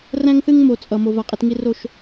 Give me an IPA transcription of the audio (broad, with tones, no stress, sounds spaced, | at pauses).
r æ̃˦ ŋ θ ɨ˦ ŋ m o˨ t͡sʼ ʌ˨ m o˨ v a˨ qʼ i˧ t ŋ i˦ r o˦˨ ʃ